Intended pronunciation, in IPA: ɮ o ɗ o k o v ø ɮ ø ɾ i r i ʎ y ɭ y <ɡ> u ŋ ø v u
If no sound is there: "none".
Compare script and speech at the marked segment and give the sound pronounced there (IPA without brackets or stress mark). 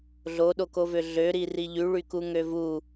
k